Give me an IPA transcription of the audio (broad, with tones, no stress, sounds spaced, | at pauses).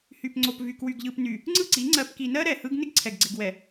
h y˨ p ŋ͡ǀ o˨ p v y˨ k w y˨ ɡ ʎ ɯ˨ p n y˨ | ŋ͡ǀ ɯ˦˨ ǀ i˨˦ ŋ͡ǀ ɜ˨ p k i˨ n ɜ˦ ɾ ɛ˨ h ɯ˦ ɡ n ɪ˦ ɡ ǀʰ ɛ˨ ɡ ɡ͡ǀ ɪ˨ ɡ w ɛ˨